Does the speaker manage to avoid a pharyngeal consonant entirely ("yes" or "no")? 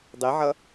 no